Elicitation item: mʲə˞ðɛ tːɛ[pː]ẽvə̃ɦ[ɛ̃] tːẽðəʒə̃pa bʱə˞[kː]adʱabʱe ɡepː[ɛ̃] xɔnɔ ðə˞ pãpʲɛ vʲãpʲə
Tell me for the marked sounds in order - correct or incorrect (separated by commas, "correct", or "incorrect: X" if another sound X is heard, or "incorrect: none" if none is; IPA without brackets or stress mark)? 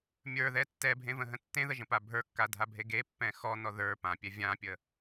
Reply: incorrect: bʱ, incorrect: ə̃, correct, correct